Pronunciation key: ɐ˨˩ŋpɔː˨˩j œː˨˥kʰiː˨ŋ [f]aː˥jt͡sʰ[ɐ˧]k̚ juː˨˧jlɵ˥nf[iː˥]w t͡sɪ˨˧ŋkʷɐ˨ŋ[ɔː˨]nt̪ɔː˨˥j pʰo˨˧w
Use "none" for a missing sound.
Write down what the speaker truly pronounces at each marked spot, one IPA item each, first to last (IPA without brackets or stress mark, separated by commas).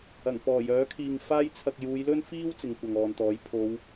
f, ɐ˧, iː˥, ɔː˨